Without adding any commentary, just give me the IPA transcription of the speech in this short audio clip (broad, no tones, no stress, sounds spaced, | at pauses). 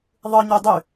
ðˤ ɯ ɲ y dˤ y